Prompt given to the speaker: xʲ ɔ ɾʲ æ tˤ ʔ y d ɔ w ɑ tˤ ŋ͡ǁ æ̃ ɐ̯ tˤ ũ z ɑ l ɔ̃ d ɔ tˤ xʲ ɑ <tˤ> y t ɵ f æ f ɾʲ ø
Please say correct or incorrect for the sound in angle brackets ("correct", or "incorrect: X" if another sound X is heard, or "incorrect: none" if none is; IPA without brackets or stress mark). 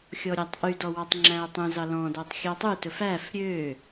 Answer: correct